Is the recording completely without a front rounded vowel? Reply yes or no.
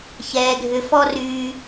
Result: no